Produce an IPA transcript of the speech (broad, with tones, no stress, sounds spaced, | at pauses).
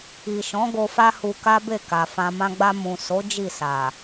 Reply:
i˨ ʃ ɔ̃˨˦ ɡ o˧ f a˦ h u˧ k a˦ b e˦˨ k a˨ f ã˨ m ã˧ ɡ͡b a˧ m ũ˨ s o˨˦ d͡ʒ i˦˨ s a˨